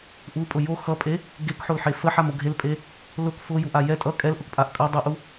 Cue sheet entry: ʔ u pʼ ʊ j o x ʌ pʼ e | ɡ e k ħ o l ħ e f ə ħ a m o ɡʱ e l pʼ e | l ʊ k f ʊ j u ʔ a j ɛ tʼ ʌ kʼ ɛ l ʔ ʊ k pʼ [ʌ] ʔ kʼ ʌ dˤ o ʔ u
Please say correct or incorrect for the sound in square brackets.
incorrect: a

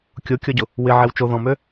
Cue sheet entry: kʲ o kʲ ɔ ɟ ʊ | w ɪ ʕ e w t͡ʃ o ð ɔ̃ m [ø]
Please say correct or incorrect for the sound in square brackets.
correct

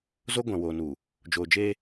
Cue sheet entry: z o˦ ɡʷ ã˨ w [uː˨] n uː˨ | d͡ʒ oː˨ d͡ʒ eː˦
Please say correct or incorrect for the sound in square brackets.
incorrect: oː˨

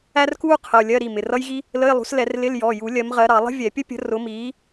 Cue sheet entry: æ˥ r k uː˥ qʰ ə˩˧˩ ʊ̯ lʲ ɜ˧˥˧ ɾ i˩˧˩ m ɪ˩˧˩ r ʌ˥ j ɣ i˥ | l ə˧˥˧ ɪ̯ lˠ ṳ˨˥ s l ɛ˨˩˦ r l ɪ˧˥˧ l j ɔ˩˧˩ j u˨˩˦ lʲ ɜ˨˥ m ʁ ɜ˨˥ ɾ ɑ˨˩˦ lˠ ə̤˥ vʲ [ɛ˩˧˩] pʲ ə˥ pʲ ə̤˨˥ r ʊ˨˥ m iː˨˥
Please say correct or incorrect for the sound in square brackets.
incorrect: ɛ˨˩˦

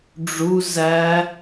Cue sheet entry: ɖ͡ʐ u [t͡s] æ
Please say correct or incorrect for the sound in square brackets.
incorrect: z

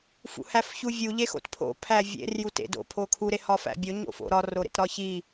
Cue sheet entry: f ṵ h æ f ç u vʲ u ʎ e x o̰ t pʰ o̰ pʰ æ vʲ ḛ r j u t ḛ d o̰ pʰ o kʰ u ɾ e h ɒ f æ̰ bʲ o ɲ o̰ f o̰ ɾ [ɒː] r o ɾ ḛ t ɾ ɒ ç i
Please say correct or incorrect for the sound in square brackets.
incorrect: ɒ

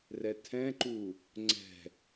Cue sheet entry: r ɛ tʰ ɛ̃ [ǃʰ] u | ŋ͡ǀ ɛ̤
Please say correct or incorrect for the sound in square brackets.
incorrect: ǃ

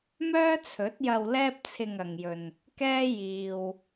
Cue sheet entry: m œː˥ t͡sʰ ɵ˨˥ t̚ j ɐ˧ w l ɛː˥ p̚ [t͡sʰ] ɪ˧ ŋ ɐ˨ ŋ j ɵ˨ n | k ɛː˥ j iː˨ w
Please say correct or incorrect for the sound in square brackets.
correct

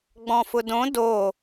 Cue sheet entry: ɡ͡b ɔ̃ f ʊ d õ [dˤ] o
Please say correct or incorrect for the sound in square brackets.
incorrect: d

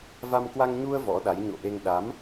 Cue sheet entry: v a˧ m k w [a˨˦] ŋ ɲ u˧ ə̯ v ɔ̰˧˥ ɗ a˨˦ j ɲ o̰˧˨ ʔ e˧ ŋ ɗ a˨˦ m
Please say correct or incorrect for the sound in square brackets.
incorrect: a˧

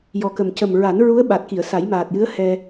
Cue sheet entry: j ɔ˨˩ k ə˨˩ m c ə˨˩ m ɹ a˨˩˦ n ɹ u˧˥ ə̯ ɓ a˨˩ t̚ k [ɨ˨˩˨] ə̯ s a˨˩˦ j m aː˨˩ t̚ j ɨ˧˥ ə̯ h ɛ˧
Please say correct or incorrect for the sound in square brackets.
incorrect: i˨˩˨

